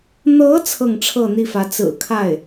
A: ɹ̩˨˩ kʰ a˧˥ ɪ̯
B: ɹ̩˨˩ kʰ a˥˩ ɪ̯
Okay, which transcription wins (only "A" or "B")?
B